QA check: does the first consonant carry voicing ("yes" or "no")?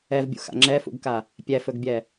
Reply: yes